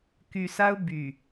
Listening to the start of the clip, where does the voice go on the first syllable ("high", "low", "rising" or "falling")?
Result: low